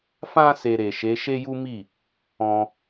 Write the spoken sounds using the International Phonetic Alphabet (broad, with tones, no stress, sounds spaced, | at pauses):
f ã˦ s e˧ ɾ e˨ ʃ e˨˦ ʃ e˦ j u˦ m i˦˨ | ɔ̃˧